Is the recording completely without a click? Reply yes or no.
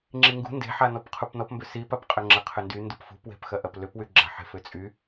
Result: no